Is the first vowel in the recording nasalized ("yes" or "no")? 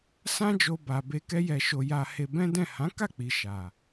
yes